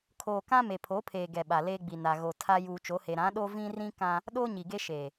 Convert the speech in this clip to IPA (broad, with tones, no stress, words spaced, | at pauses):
kʰoː˨kã˦ me˨pʰo˨˦pʰeː˨ ɡɛ˨ɓa˨leː˦ɡ͡bi˨ na˨ɣo˨ tʰa˦ juː˨t͡ʃo˨˦he˨ ɾã˨˦ɗo˦ vĩ˦rĩ˦ kã˦ | ɗoː˦ɲi˨ɡe˦ ʃeː˨